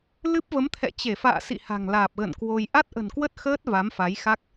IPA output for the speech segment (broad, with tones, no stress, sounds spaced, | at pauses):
l ɨ˦˥ p̚ v ə˨˦ m t̪ʰ ɛ̰˧˨ t͡ɕ e˧˩ f a̰ː˧˨ s ḭ˧˨ h a̤˨˩ ŋ l aː˨˩ p̚ ɣ ə̰˧˨ n k w o˧ j ʔ a˦˥ t̚ ʔ ə̤˨˩ n k w ə˦˥ t̚ x əː˦˥ t̚ v a˨˦ m f a˨˦ j x a˦˥ k̚